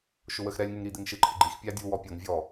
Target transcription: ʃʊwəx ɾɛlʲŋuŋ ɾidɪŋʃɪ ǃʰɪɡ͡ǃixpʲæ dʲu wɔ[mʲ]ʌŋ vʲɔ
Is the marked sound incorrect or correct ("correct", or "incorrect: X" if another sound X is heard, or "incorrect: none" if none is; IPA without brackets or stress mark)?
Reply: incorrect: pʲ